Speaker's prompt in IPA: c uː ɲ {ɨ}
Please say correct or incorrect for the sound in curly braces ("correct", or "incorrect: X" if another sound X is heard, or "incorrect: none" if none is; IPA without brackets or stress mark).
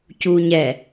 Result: incorrect: ɛ